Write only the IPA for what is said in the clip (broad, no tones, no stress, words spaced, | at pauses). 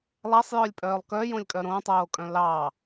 lˠæsˤjœlʲpʼœːlˠ kœjõlʲkʼœ ɾõtˤoːkʼœ̃ lɑ